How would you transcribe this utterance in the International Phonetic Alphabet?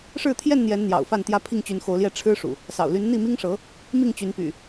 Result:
ʂ ɻ̩˥˨ t̪ʰ j ɛ˥˨ n n̪ j ɛ˨˦ n n̪ j ɑ̰˨˩ ʊ̯ f a˥˨ n t̪ j ä˦ pʰ i˥˨ ŋ t͡ɕ y˨˦ n x o˨˦ ʊ̯ l j ɛ˥˨ ʈ͡ʂʰ ɻ̩˦ ʂ ṵ˨˩ | s ɑ̰˨˩ ʊ̯ l y˨˦ n n̪ i˥˨ m i˦ ŋ ʂ ɤ˨˦ | m i˥˨ ŋ t͡ɕ y˨˦ n p y̰˨˩

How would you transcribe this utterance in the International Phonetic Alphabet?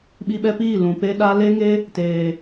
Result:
ɓ i˧ ɓ ɛ˧ p iː˦˨ l ũ˨ p e˦ ɗ a˦ l e˦ ŋ e˦ | t eː˨

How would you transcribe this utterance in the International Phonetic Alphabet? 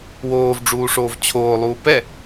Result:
w oː v ɖ͡ʐ uː ʂ oː v t͡ɕʰ oː lˠ uː p ɛ

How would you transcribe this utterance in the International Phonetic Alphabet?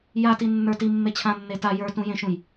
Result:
j a t i nː ə˞ t i mː e t͡ɕʰ ã nː e t a j ə˞ t ũ j ẽ ʃ ũ j

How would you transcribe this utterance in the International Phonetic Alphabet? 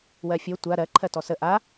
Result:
w ɜ fʲ o tʷ a ɾ ɜ ǃʰ ɜ t ɔ s ə ʔ a

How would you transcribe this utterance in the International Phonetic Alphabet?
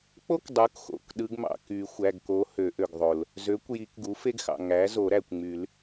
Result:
k͡p o˥ k dˤ u˩˥ k x o̰˩˧˩ k ɗ ɯ˧˥ ɡ m ɑ̰˩ k y˨˩˦ xʷ æ˩˧˩ ɡ k o˧˥ h ø˨˩˦ ʔ ø˩ ɡ ðˤ o˩ l | z ø˩˥ kʷ j i˨˩˦ k ɡ u˩˥ f e˥ ɡ x ɑ̰˩ ŋ æ˩˥ z o˨˩˦ ɾ æ˩ kʷ ŋ͡m y˨˩˦ l

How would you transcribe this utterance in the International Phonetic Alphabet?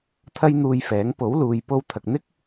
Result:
t̪ʰ ɐ˥ j n̪ uː˧ j f ɛː˨˥ ŋ p o˨˥ w l uː˨ j p o˧ w t̪ʰ ɐ˨ k̚ n̪ ɪ˥ k̚

